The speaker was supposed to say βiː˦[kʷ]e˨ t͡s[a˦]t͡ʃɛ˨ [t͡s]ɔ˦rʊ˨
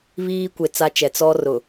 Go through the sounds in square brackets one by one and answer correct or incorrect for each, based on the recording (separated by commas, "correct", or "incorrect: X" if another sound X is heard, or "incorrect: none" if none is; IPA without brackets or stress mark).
correct, correct, correct